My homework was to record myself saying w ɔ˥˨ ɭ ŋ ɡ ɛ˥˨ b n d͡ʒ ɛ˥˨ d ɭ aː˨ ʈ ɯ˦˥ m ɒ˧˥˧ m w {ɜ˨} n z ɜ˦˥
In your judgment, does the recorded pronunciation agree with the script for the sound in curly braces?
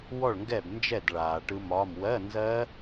no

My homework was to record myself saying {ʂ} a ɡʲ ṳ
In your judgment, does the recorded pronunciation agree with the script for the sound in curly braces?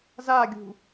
no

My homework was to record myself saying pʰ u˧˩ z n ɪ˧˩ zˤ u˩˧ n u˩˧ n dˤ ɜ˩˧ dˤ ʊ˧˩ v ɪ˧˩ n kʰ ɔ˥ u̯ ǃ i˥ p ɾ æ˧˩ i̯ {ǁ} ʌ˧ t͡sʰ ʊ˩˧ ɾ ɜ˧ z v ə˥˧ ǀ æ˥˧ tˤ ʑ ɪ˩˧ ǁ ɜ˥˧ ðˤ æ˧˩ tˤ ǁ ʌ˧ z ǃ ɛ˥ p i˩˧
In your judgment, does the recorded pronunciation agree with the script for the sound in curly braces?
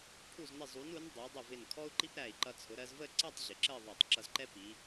no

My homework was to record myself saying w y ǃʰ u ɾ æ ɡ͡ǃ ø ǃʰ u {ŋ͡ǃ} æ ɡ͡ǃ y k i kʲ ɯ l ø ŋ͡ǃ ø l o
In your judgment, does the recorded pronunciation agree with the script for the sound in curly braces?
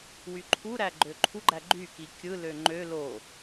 no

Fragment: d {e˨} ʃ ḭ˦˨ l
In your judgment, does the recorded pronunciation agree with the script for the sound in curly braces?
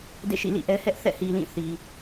no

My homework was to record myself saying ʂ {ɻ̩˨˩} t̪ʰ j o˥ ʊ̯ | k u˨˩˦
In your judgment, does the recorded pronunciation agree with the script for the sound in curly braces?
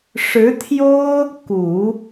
no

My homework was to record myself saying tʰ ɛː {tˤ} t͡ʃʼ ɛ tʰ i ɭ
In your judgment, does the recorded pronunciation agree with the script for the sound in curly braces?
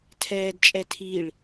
no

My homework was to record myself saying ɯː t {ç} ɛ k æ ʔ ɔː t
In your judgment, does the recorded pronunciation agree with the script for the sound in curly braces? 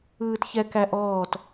yes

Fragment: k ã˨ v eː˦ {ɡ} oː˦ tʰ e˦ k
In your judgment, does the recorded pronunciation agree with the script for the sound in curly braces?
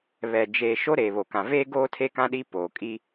yes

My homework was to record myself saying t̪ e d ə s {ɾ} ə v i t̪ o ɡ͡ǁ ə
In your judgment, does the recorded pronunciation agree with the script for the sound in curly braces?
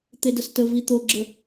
no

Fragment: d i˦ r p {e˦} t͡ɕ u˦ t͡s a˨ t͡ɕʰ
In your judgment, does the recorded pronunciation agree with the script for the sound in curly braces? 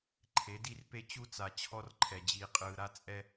yes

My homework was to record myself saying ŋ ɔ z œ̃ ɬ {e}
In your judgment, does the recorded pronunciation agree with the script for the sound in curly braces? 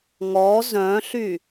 no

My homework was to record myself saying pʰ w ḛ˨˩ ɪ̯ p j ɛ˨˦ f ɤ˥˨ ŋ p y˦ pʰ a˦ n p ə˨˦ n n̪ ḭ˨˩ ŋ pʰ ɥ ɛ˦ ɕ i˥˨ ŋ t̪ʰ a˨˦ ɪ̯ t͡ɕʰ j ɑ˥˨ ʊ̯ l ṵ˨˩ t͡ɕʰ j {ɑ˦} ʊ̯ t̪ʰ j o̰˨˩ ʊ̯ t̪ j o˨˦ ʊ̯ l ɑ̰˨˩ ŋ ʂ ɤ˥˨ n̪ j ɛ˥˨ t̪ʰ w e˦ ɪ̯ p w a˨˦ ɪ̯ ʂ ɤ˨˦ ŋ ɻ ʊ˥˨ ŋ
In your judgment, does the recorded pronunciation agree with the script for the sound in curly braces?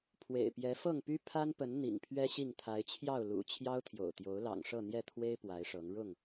yes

